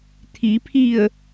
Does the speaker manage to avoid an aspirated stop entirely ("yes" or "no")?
no